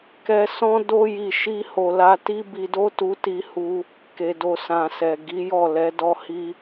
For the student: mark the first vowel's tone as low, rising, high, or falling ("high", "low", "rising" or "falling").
high